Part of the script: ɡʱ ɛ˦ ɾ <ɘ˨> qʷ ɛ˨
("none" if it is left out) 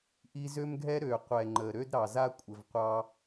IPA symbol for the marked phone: ø˨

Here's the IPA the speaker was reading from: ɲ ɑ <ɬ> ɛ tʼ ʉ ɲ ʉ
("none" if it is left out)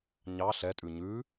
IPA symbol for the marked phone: ɬ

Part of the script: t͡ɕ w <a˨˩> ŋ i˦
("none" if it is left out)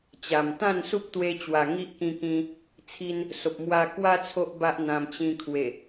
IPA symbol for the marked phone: a˨˩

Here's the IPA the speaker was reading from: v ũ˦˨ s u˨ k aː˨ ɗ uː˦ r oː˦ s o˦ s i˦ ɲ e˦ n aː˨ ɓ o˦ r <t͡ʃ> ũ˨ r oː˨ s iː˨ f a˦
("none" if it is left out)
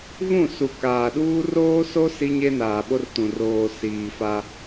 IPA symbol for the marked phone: t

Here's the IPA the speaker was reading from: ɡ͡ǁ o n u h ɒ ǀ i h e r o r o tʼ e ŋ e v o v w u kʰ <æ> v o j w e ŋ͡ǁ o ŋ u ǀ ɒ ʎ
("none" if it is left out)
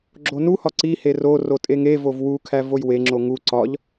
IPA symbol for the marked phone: æ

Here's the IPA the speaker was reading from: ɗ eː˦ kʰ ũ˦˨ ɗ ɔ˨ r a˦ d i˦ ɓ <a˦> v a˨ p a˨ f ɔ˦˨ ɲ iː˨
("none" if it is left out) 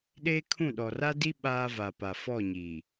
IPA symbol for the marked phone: aː˦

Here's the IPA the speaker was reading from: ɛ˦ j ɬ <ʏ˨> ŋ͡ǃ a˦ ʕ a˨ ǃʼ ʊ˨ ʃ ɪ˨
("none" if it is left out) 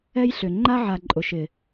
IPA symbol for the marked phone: ʏ˨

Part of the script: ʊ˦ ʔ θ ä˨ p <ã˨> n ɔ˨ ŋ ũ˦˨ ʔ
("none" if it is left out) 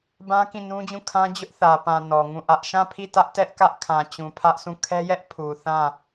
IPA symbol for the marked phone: ã˨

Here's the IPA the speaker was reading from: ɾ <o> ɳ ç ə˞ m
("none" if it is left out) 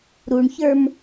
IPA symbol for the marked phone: u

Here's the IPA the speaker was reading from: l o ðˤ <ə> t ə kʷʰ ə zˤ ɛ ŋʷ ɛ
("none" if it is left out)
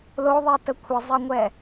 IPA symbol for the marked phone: ɛ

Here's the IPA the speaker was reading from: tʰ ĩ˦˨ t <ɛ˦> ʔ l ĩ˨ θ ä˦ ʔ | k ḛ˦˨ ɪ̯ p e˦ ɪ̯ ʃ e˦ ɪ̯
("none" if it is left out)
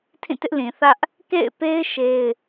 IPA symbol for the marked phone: ɪ˦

